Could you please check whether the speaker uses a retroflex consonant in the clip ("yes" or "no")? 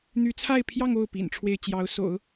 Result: yes